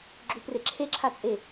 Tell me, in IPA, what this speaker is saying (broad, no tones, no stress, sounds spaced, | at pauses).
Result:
ɡ͡ǁ u p r e ǁʰ e ǁʰ a t͡sʼ e